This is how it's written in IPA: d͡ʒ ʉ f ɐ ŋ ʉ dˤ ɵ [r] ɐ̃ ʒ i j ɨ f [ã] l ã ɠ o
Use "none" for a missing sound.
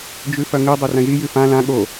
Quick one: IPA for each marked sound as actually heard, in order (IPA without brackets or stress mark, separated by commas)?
r, ã